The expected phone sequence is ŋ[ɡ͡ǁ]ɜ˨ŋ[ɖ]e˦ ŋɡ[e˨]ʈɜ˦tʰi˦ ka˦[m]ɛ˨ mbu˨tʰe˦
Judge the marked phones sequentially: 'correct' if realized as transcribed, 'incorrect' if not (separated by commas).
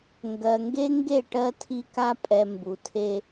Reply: incorrect, incorrect, incorrect, incorrect